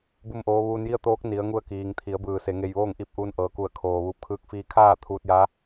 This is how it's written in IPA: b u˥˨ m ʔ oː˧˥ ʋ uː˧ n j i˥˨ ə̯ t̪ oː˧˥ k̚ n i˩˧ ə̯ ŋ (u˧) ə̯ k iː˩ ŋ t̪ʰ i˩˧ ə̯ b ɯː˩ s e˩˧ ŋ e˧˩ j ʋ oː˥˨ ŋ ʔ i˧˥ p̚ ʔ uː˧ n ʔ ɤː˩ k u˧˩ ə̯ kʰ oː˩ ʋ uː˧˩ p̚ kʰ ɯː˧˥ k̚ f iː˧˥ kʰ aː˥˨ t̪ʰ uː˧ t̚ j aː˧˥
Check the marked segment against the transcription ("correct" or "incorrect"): correct